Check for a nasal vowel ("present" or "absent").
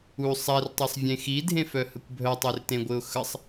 present